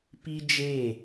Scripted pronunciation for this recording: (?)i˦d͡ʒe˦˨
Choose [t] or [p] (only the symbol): p